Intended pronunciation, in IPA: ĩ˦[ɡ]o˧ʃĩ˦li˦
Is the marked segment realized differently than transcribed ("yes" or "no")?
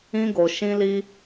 no